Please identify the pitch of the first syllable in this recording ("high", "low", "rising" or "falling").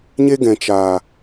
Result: high